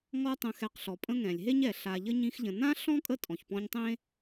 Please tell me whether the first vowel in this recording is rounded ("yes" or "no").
yes